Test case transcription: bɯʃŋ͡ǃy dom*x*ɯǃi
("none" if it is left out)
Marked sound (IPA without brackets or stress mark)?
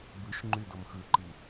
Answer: x